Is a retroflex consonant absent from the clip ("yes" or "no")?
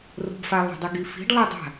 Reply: no